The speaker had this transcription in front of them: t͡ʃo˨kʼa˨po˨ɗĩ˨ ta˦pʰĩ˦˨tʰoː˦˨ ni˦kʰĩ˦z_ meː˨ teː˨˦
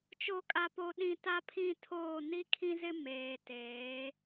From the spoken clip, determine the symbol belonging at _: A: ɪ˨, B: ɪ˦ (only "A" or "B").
B